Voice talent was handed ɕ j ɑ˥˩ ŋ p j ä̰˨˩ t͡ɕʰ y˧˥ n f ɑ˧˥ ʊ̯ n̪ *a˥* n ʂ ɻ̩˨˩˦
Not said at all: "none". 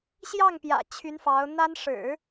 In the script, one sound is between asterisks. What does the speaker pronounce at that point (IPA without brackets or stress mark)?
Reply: a˥